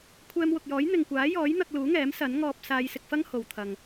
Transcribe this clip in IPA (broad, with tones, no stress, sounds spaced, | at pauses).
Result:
kʷʰ ɛː˧ m w ʊ˨ k̚ j ɔː˨˥ j n̪ ɪ˨ ŋ kʷ aː˨˥ j ɔː˨˥ j n̪ ɐ˧ k̚ l uː˨˥ ŋ ɛː˨˥ m s ɐ˨˥ n ŋ ɔː˧ p̚ s aː˧ j s ɪ˧ k̚ f ɐ˥ ŋ h o˨ w t̪ʰ ɐ˨ ŋ